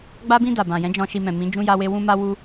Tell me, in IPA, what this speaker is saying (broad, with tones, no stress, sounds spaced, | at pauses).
ɡ͡b a˧ b ĩ˧ d a˨ b ã˨ j ɛ̃˨˦ d͡ʒ ɔ̃˧ ʃ i˧ m ɛ̃˨ m ĩ˨˦ d͡ʒ ũ˦ j a˦ w e˦ w ũ˦ m a˦ w u˦